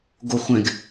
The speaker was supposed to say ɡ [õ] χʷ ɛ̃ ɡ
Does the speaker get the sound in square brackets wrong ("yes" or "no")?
yes